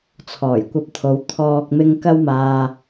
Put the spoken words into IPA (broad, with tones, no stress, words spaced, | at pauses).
t͡sʰɔː˨˩jkʷɐ˧p̚t̪ʰo˨˧w t̪ʰɔː˨k̚mɪ˧ŋ kɐ˥wmaː˧